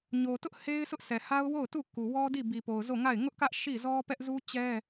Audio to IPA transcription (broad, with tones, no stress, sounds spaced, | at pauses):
ɲ o˨ t ʊ˦ ʔ h e˦ ɪ̯ s ʊ˦ ʔ s ɛ˨ h a˦ ʊ̯ w o˦˨ ʊ̯ t u˦˨ k u˨ w ɔ˦ d i˦˨ b i˨ p o˨ ʊ̯ z o˦˨ ŋ a˦˨ ɪ̯ ŋ ʊ˦ ʔ k ä˦ ʔ ʃ i˦˨ z ɔ˦ p ɛ˦ ʔ z u˦ t͡ɕ ɛ˦